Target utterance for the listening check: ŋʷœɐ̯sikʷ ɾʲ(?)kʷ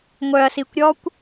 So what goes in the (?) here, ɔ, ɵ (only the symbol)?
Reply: ɔ